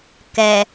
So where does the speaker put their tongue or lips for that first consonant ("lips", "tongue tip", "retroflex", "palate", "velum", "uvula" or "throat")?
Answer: velum